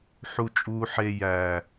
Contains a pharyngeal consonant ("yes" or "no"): yes